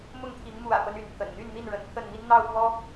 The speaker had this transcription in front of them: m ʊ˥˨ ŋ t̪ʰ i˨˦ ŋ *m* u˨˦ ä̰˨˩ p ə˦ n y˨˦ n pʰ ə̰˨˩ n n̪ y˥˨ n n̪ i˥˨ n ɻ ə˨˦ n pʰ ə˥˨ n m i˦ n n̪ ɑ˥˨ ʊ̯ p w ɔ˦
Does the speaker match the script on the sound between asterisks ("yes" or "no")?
yes